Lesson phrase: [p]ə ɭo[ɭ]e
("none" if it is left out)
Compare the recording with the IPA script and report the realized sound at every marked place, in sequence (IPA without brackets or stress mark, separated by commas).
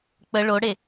k͡p, ɽ